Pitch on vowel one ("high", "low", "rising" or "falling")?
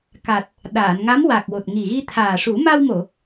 low